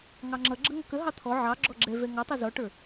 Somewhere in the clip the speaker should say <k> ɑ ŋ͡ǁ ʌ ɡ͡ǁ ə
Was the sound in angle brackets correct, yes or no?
no